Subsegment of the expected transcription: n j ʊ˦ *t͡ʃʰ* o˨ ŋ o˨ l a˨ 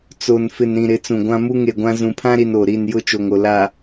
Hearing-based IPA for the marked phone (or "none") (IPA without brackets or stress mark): t͡ʃ